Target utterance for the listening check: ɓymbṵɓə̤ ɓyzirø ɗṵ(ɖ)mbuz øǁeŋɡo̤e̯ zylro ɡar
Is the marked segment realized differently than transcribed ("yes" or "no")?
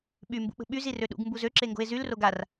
yes